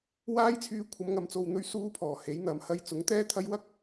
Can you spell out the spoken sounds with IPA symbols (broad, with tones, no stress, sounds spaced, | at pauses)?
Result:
w aː˥ j t͡sʰ yː˧ kʷʰ ɐ˨˧ m ŋ ɐ˨ m t͡s o˨ w n̪ ɵ˧ ɥ s uː˥ pʰ ɔː˨˩ h e˨˥ j n̪ ɐ˨˧ m h ɐ˧ j t͡s ʊ˨˥ ŋ t̪ ɛː˥ t̪ʰ ɐ˥ j w ɐ˥ k̚